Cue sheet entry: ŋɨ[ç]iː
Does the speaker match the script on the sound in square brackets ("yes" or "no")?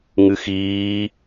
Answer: no